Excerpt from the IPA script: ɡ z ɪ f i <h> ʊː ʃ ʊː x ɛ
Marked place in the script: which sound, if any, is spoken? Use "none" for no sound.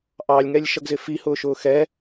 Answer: h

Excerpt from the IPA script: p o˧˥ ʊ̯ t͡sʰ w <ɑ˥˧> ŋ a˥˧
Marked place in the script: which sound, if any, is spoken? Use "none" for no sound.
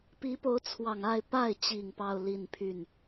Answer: ɑ˨˩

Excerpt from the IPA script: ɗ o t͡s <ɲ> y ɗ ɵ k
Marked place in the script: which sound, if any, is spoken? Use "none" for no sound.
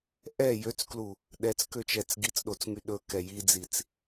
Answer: ŋ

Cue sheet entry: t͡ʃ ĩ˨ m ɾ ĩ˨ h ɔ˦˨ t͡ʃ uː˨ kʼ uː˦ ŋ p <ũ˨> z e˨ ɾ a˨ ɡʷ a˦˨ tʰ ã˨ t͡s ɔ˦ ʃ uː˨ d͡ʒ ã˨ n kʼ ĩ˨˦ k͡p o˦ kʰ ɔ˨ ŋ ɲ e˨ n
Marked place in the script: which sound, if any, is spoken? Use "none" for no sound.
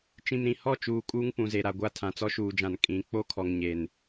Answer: ũ˨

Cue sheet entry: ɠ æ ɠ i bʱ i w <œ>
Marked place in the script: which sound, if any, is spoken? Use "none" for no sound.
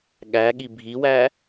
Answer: æ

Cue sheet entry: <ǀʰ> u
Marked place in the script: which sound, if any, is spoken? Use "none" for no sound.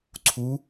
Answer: ǀʰ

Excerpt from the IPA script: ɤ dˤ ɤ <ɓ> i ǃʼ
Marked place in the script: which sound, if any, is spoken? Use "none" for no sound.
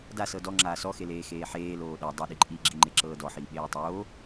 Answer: ɗ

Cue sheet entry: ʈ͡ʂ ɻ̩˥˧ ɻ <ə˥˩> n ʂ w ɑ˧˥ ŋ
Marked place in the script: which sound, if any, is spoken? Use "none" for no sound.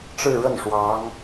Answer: ə˥˩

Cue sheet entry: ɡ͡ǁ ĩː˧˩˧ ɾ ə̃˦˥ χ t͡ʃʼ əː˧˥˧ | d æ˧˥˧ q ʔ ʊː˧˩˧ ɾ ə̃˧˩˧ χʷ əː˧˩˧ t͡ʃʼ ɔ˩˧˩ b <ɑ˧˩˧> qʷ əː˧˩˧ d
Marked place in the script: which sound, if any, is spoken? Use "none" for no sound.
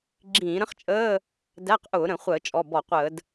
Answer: ɔ˧˩˧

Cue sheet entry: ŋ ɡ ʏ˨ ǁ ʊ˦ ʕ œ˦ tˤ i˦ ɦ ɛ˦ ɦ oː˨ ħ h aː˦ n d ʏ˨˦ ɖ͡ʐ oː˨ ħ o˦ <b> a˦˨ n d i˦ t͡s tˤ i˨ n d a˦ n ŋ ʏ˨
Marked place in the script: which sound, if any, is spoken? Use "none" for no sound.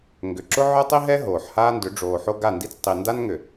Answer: ɡ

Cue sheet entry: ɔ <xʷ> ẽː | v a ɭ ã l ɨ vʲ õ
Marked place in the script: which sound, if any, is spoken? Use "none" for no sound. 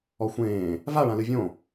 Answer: xʷ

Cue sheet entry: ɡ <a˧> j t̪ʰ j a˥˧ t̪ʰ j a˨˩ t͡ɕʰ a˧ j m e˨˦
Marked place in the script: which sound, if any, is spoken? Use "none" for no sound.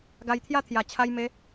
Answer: a˧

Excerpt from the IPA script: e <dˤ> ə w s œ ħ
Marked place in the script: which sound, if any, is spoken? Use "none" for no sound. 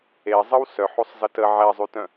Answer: zˤ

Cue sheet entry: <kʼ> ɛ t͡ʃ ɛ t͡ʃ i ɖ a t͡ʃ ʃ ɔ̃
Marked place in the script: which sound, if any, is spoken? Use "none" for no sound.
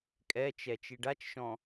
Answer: kʼ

